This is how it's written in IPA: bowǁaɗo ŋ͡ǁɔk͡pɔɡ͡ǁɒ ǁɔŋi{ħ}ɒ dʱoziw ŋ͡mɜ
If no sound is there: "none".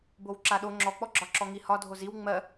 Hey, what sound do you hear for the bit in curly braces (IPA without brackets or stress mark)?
h